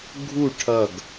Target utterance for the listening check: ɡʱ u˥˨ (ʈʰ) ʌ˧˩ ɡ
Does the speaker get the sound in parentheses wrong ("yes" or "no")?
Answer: no